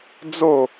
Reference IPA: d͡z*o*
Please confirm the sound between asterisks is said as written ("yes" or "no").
yes